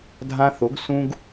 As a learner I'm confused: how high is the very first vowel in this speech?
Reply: low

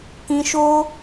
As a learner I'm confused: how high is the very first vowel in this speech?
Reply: high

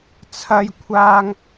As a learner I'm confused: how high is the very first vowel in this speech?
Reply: low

